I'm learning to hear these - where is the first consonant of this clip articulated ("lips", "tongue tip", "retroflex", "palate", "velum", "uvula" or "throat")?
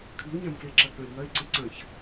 velum